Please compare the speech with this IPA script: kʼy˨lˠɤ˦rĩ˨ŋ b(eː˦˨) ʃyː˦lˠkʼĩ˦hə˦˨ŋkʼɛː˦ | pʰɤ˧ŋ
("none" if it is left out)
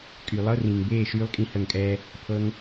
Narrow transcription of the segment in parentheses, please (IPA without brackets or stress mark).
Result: eː˦˨